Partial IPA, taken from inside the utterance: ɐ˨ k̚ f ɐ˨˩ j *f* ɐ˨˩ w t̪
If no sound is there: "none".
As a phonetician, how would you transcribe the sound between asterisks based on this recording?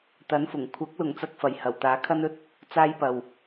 h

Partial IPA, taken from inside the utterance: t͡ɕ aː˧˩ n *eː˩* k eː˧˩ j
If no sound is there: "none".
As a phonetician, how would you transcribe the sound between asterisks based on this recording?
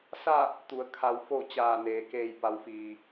eː˩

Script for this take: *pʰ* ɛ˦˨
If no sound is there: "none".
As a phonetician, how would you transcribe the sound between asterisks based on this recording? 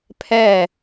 pʰ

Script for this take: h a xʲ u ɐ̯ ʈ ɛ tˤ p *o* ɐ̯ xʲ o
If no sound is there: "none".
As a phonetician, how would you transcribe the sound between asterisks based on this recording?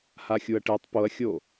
o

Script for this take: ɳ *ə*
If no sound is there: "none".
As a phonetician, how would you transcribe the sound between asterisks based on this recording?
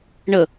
ə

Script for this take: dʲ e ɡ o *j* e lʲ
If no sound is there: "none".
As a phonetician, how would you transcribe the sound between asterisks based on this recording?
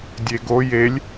j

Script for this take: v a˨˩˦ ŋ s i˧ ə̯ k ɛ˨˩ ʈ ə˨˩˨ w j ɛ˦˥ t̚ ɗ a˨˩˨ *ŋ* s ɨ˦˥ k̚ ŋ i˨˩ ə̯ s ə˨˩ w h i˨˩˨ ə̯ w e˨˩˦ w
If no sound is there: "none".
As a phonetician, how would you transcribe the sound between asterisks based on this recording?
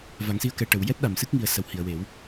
m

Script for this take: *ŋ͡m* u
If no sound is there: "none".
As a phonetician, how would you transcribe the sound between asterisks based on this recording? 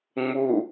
ŋ͡m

